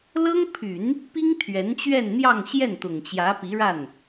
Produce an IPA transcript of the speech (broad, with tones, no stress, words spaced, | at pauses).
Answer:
lɤ˥ŋpʰy˨˩˦n | pi˥ŋ t̪ʰɥɛ˧˥nt͡ɕɥɛ˥˧n n̪jɑ˥˧ŋɕjɛ˥˩nt̪ʊ˨˩ŋt͡ɕjä˧˥ pi˧˥ɻa˥˩n